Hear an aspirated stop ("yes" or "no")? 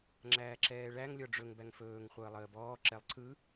yes